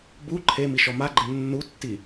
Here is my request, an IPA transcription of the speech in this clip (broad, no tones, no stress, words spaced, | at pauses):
bu ǃʰemi ʃɔmaɡ͡ǃɪ nːutːi